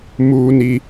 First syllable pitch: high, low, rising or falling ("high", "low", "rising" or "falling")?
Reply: high